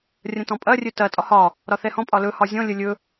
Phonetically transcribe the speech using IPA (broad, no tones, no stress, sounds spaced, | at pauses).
rʲ ɐ̃ t ɔ̃ pʼ ɐ rʲ ɵ t ɐ tʼ ɒ h ɒ | ɾ ɒ θ ɛ h ɔ̃ pʼ ɒ l ɵ h ɒ zʲ ɔ̃ lʲ ə lʲ ɵ